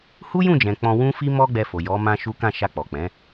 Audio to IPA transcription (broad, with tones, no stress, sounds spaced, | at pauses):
h u˦ j ũ˦˨ d͡ʒ ɛ̃˨ k͡p ɔ̃˧ w ũ˦ f i˦ m ɔ˦ ɡ͡b ɛ˧ f o˨ j ɔ˨˦ m ã˦ ʃ u˦ k ã˦˨ ʃ a˧ k͡p ɔ˨ k͡p ɛ̃˨˦